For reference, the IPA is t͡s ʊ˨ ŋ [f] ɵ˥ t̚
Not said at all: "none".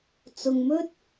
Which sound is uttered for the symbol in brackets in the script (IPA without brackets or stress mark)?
m